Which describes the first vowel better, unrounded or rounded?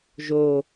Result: rounded